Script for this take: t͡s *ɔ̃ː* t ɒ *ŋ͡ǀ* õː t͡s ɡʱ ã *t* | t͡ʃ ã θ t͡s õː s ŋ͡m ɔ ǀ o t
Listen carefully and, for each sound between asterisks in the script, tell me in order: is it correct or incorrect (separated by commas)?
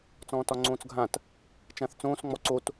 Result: correct, correct, correct